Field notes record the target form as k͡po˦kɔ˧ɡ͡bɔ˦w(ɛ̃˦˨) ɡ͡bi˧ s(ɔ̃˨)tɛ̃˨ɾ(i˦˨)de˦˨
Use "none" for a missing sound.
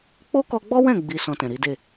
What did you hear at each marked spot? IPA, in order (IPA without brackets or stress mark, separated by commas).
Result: ɛ̃˦˨, ɔ̃˧, i˨˦